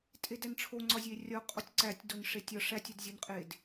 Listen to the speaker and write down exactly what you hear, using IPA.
tʼ e d æ n ʈ͡ʂʰ o ŋ͡ǀ ɒ zʲ e rʲ ɒ qʼ o tʲ ǀ æ tʲ d o n ʂ e tʲ ɒ ʂ æ tʲ u d zʲ o n qʼ e d

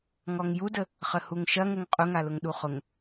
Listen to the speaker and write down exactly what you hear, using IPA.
ŋ ɔ ŋ j u d ə | χ ə h u ŋ ʃ ɐ ŋ ʊ ŋ qʼ ʊ ŋ a l ʊ ŋ ɗ u χ ʊ ŋ

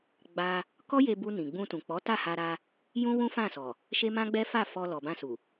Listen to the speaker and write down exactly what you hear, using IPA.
ɡ͡b a˧ | k ɔ˦ j e˧ b u˧ n ĩ˨ ɡ͡b ũ˧ t ũ˨ k͡p ɔ˨˦ t a˦˨ h a˧ ɾ a˧ | j ũ˦ w ũ˦ f ã˦˨ s ɔ˨ | ʃ e˦ m ã˦ ɡ͡b ɛ˦ f a˦˨ f ɔ˧ l ɔ˨ b ã˧ s u˨

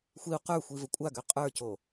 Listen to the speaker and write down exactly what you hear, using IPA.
xʷ i u̯ q ə˞ xʷ i v ə kʷʼ a ɡ ø qʼ ə˞ c o

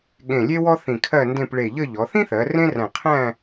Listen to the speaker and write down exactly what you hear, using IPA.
ɠ ẽ˧˩ lʲ e˥ w ɔ˥ θ ĩ˧˩ kʰ ɜ˥˧ n d ẽ˥˧ p ɭ e˧˩ ʎ ə˥˧ ʎ ɔ˩˧ θ ĩ˥ θ ɜ˩˧ r ẽ˥ r æ̃˧˩ qʰ æ̃˥˧

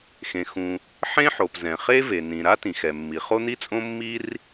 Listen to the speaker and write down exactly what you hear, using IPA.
x ẽ˩ x ũ˩ | ħ ẽ˥ ħ o˩ p z ɛ̃˩ χ e˥ v e˩ n ĩ˩ ɾ a˥ t ĩ˩ x ɛ˩ mː i˩ χ o˥ n̪ i˥ t͡sʼ õ˥ mː i˥ r

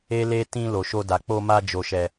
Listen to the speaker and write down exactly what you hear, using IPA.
e˦ l e˦ t ĩ˧ l o˨ ʃ o˧ d a˨ k͡p o˧ m a˧ d͡ʒ o˨ ʃ ɛ˨

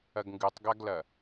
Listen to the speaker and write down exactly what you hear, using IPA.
ɐ ɡ ŋ ɡ ɨ tˤ ɡ a ɡ l ɐ

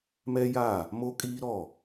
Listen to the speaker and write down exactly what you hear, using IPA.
m ɛ˦ j a˦˨ | m o˦ kʼ iː˦ ɾ ɔ˦˨

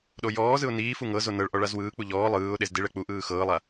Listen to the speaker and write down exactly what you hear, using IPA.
ɗ o j ɔː z ɯ ʊ̯ n iː f u ŋ ɤ z o n ɤ ɭ ʔ ɔ ɭ a z w ɯː k͡p u ʎ ɔː lˠ ɯː ʊ̯ ɗ e z d i ɭ ɛ k͡p u ʔ ɯː x ɤː lˠ a

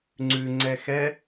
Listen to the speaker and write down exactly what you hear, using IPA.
ŋ͡ǀ ʉ ŋ͡ǀ ɛ x ɛ

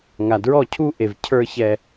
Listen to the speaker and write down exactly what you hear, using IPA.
ŋ a˨ d ɹ ɔ˦˨ cʰ u˦ ʔ e˨ v cʰ ə˞˦ ç ɛ˦

